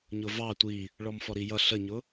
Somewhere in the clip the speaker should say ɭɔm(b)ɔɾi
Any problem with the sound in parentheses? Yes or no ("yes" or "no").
yes